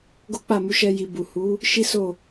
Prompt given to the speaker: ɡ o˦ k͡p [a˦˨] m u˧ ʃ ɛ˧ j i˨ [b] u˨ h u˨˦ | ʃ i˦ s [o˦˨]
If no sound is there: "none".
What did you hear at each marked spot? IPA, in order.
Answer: a˦˨, b, o˦˨

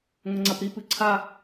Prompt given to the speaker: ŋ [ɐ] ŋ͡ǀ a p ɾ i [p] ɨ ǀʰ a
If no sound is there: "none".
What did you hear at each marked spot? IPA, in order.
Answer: ɐ, p

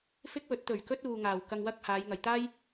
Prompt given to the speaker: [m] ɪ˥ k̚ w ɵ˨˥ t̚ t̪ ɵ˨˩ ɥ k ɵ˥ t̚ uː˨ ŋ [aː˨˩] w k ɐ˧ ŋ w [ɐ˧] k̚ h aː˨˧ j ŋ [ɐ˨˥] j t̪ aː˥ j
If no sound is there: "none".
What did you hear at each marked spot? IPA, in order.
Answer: f, aː˨˩, ɐ˥, ɐ˨

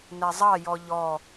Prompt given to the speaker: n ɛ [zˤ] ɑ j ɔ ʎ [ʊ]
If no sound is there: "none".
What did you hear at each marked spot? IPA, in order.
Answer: zˤ, ɔ

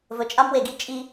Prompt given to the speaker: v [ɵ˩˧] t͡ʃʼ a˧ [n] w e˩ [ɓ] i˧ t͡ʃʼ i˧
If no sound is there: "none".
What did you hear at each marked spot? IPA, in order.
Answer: ɵ˩˧, m, ɡ

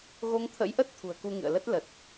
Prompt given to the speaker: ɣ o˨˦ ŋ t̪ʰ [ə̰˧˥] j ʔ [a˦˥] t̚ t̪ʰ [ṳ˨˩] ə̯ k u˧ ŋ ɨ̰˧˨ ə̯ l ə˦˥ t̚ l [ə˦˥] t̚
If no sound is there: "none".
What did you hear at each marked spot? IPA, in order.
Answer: ə̰˧˥, ə˦˥, ṳ˨˩, ə˨˩

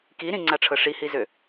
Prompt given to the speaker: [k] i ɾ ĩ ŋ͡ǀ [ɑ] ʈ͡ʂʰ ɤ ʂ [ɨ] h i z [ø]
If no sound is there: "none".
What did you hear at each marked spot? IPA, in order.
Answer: k, a, i, ø

